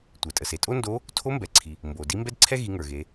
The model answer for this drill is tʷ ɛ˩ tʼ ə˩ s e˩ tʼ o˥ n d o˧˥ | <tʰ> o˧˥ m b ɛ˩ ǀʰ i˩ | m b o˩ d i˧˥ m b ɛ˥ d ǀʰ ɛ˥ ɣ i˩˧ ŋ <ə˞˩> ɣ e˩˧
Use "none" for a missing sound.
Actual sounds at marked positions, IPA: tʰ, ə˞˩

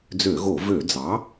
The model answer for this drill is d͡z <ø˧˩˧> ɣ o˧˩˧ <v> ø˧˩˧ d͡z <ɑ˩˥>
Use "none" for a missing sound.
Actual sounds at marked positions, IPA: ø˧˩˧, v, ɑ˩˥

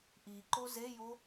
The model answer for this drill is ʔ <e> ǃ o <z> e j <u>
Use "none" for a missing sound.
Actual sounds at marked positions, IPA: i, z, o

